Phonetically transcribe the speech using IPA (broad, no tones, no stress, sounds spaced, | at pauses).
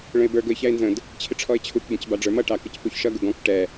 ɭ ə̃ ɪ̯ b ə˞ ɡ ʊ ɪ̯ ç æ ɪ̯ n z ə̃ d | t͡ɕʰ ɪ ʈ͡ʂʰ ɔ ɪ̯ t͡ɕʰ u k b ə̃ c b ɑ ɖ͡ʐ ə˞ m ʌ ʈ ɑ k ə c p u ç ʃ ʌ ɡ ʊ ɡ ɔ̃ k ʈ ɛ